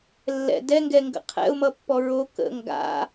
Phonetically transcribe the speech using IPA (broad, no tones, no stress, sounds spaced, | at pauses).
lː ɛ̰ d ɛ ŋ ɡ ɛ ŋ ɡ ə̰ qʰ ɛ̰ ʊ̯ m ʌ pː ɔ ɹ o k ə̰ ŋ ɡ a̰